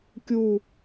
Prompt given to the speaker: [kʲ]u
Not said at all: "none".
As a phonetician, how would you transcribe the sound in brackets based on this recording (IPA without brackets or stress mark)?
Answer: kʲ